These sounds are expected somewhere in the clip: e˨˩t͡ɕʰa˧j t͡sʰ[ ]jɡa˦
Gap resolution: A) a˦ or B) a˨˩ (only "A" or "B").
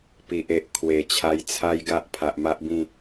A